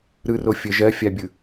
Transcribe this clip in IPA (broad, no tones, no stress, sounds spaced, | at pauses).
ɾ ɯ r o fʲ ə ʒ ɜ fʲ a bʲ ɯ